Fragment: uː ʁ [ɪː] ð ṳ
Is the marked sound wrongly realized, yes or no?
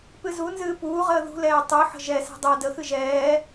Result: yes